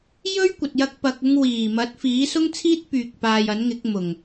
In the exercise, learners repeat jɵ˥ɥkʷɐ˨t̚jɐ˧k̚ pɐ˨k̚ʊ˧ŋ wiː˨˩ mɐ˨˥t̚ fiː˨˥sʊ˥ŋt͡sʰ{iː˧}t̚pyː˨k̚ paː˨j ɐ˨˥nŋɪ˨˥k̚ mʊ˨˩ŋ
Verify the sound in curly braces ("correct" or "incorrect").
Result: incorrect